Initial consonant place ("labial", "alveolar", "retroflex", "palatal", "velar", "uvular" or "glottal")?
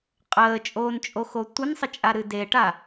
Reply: uvular